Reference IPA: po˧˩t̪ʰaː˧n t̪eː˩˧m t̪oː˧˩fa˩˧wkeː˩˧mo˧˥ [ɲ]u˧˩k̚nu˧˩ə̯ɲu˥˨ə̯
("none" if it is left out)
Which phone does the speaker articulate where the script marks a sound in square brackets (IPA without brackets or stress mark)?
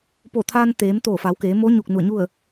ɲ